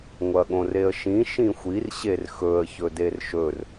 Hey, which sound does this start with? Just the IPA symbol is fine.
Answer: ŋʷ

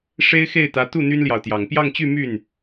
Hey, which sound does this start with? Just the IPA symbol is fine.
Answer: ʂ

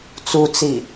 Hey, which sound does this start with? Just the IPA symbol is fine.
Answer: t͡s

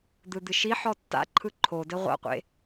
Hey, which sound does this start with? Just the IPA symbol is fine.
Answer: d̪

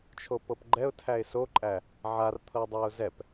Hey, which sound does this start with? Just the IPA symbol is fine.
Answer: t͡ʃʰ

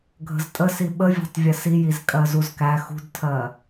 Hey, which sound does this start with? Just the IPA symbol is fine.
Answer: ɡʱ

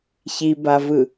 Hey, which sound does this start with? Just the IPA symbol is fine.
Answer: ç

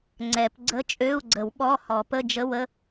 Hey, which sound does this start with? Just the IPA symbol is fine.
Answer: ŋ͡ǀ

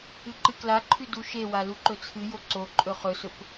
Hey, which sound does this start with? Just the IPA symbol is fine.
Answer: ɨ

